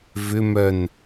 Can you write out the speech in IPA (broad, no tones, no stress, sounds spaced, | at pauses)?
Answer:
v ʏ m œ n